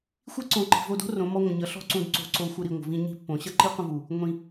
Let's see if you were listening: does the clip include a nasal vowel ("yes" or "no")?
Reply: yes